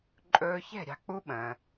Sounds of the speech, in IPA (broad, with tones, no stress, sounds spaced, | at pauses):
ǃʼ ɵː˧ ç ɛ̤˥˩ ɾʲ ɑ̤˧ k͡p u˧˥ ɓ ə̃ː˩